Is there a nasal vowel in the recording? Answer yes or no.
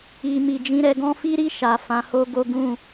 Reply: yes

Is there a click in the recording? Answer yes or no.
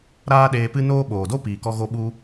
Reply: no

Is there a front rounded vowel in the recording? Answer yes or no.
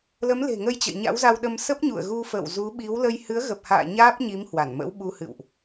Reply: no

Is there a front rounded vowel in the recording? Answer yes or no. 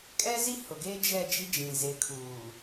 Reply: no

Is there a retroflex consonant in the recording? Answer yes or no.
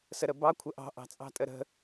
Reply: no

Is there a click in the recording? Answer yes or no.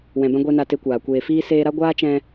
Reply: no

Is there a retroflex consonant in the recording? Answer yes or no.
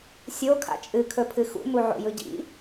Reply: no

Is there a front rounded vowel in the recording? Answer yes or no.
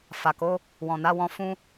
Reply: no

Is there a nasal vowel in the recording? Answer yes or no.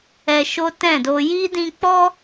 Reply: yes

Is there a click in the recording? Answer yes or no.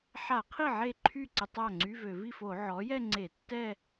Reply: yes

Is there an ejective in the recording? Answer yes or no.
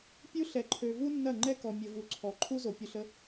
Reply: no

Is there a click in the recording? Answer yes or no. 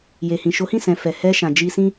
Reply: no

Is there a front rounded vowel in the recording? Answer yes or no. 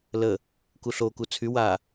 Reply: yes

